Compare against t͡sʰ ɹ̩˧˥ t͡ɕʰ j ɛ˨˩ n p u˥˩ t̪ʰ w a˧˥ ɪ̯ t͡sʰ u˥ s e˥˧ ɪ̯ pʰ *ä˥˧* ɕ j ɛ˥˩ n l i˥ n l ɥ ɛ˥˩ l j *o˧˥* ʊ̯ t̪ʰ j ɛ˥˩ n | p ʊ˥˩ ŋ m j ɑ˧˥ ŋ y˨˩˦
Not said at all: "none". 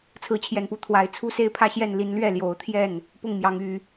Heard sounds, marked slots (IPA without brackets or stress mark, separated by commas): ä˥˧, o˧˥